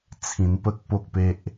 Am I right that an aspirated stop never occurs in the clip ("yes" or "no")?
no